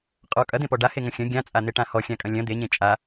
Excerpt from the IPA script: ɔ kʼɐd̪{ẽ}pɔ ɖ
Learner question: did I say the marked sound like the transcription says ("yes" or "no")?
yes